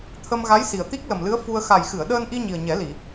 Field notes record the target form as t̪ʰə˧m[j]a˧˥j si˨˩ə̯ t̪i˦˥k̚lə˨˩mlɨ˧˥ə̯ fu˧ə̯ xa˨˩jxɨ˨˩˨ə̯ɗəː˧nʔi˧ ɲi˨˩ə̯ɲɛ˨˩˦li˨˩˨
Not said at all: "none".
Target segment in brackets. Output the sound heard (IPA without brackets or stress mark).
ɣ